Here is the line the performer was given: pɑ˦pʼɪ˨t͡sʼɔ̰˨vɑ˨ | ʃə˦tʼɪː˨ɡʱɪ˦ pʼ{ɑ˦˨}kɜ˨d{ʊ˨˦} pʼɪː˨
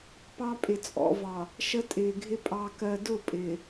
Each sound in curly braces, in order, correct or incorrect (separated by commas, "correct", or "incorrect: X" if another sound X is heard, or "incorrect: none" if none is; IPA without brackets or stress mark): incorrect: ɑ˨, incorrect: ʊ˦˨